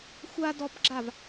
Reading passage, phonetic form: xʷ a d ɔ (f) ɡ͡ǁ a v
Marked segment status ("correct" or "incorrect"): incorrect